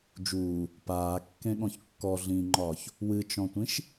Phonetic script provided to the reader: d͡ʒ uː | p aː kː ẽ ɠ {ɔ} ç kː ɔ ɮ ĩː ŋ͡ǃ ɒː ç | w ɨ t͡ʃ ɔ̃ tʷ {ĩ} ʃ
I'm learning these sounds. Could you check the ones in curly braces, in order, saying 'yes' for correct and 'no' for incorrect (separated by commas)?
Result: no, yes